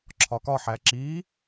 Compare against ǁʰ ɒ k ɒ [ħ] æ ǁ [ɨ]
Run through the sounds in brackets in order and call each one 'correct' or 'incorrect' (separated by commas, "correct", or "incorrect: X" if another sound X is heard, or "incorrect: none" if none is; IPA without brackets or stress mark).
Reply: correct, incorrect: i